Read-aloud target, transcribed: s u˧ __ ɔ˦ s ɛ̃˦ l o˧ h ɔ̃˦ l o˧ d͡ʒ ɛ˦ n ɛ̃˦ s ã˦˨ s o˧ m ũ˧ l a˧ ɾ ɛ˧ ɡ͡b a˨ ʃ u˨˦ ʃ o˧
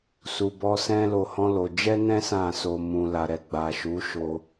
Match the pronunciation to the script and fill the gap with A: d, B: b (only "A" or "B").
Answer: B